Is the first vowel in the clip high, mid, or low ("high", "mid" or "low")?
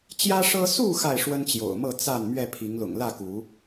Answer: low